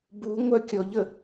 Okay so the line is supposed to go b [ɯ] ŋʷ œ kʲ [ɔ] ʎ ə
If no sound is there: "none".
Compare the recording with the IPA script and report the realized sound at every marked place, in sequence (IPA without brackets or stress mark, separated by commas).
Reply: u, ɔ